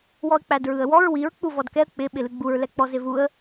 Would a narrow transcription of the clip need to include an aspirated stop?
no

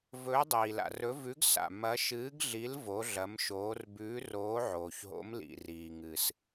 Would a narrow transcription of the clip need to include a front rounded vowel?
no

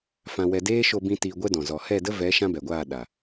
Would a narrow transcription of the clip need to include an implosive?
yes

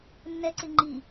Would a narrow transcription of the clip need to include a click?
yes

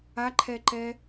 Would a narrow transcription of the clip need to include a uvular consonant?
no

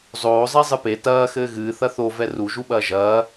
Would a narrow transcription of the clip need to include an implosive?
yes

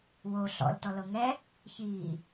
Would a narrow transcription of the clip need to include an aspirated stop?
no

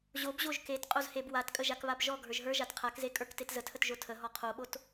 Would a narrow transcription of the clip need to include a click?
no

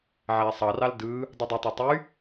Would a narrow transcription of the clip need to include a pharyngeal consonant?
yes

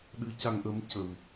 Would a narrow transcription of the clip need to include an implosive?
yes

